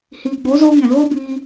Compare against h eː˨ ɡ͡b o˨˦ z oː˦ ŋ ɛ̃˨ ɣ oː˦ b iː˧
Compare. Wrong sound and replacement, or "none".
eː˨ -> iː˨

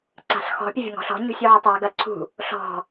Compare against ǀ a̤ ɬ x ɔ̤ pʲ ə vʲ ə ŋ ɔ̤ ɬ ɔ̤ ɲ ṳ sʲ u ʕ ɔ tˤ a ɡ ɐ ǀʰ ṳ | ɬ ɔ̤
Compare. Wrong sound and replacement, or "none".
none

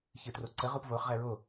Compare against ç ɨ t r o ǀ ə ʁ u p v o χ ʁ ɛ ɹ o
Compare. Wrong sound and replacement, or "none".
none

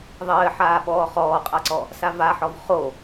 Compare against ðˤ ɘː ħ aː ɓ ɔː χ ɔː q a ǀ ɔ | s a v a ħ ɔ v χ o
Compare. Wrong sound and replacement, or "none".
q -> qʼ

